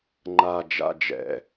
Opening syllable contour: low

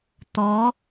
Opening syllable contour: rising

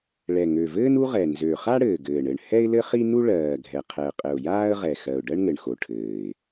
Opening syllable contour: low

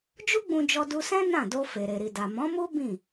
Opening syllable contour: high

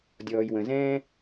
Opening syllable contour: low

